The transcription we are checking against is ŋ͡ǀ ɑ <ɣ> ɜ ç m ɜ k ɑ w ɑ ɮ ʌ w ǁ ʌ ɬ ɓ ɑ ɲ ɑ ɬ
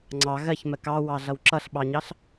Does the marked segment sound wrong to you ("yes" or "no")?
no